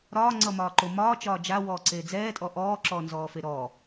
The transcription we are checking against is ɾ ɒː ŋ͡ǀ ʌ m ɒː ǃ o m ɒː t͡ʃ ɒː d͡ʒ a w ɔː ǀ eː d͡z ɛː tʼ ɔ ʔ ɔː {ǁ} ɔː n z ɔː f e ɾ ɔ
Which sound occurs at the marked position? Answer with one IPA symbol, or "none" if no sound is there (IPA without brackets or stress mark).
ǁ